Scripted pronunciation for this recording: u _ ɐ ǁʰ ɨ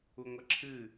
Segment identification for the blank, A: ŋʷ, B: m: A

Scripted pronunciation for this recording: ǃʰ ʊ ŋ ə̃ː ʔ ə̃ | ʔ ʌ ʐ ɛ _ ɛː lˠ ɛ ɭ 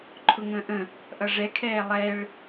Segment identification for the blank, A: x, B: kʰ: B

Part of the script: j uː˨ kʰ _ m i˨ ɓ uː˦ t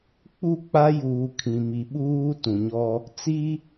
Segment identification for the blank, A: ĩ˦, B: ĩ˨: B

